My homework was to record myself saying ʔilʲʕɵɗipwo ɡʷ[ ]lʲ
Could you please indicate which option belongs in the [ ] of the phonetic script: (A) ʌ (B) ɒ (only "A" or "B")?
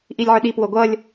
A